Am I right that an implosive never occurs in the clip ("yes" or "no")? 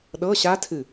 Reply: no